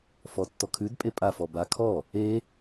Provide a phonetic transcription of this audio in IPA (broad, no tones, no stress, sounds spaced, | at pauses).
f ɔ tː ɔ kʰ ʉ d pʼ e pʼ a f ɔ b a kʰ ɔ | e